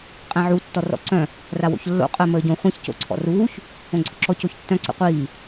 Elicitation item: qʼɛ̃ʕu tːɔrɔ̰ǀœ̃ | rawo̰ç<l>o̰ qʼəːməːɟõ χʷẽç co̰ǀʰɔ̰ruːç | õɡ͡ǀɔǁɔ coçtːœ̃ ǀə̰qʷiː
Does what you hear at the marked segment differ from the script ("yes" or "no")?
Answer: yes